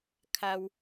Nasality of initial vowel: oral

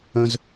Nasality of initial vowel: nasal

